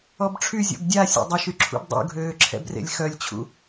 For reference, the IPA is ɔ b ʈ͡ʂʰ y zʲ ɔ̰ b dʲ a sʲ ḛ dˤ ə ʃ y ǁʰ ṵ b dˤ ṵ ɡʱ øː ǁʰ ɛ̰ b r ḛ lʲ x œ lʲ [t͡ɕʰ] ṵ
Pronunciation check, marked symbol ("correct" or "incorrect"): correct